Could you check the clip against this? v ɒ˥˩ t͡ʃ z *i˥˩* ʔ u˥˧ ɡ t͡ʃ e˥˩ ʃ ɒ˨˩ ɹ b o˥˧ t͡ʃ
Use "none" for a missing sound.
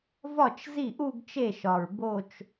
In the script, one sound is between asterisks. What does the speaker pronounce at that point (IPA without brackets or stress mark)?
i˥˩